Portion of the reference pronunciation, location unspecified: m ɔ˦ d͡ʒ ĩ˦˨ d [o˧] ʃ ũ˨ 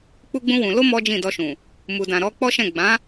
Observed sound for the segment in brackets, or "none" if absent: ɔ˧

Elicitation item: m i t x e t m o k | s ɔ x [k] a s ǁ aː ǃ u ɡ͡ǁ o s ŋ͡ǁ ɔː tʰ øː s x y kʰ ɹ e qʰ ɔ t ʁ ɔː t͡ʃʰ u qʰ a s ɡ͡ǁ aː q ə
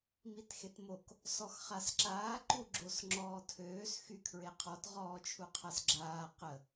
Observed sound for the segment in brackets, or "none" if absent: χ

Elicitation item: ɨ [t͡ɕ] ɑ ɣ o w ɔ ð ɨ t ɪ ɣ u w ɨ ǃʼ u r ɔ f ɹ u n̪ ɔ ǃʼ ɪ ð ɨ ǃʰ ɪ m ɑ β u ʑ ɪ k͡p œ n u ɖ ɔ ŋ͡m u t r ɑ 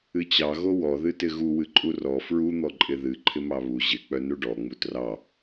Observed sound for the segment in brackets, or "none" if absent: t͡ɕ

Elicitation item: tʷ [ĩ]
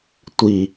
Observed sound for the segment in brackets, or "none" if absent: i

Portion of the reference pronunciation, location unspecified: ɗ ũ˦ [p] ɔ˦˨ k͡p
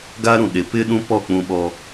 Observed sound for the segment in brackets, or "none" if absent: p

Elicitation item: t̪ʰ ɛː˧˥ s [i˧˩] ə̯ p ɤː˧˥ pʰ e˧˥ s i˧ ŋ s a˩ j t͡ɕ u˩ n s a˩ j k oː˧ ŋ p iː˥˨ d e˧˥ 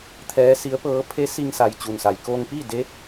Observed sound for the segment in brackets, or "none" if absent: i˧˥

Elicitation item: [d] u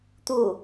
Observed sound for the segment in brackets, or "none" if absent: t̪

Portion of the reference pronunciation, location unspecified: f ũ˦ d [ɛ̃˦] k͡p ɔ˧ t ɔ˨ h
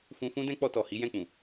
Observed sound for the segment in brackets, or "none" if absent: ɛ̃˦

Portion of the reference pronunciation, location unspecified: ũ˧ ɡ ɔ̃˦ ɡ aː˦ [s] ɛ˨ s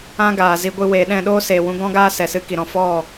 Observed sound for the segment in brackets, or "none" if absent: s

